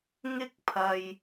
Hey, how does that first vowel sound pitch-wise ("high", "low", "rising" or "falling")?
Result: high